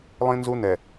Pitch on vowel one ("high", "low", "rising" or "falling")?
high